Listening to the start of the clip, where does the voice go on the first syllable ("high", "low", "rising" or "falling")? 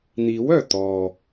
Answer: rising